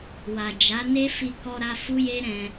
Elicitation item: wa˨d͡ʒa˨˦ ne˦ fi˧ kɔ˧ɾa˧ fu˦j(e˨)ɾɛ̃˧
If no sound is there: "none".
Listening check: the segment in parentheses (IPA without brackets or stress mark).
e˦